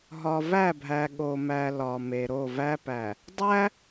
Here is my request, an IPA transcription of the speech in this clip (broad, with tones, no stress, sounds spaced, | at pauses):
ɦ ɒ˨ v æ˦˨ bʱ æ˨ ɠ o˨ m æ˨ l ɒ˨ m e˨ ɾ o˦˨ v æ˦ p æ˨ | dˤ æ˦